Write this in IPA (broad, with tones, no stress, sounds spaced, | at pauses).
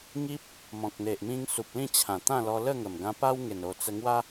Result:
ŋ i˦ p̚ | m ɔ̃˨ k̚ n̪ e˨ ʔ m ĩ˧ ŋ s u˨ p̚ l ĩ˥˧ t͡ɕʰ ã˨˩ t̪ ã˥˧ l ɔ˧ l ə˥˧ ŋ ə˨˩ m ɡ ã˧ p a˦ w ŋ e˨˩ n o˨˩ t͡s ə˧ ŋ w a˦